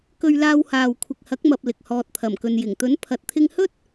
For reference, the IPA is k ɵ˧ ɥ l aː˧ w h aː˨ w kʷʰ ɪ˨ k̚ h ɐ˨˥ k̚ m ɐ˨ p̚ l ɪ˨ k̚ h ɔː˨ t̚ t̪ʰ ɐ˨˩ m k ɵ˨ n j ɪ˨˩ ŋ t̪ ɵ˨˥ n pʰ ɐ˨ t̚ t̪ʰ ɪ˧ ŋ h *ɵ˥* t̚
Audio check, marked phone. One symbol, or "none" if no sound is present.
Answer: ɵ˥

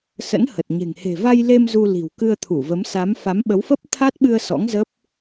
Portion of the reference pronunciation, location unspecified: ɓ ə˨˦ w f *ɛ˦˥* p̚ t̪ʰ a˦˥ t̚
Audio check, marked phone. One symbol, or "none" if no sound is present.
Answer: ə˦˥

